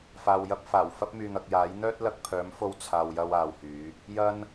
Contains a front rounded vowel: yes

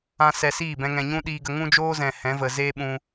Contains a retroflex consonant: no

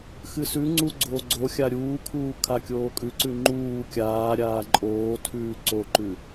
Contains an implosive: no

